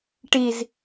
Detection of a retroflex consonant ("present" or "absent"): present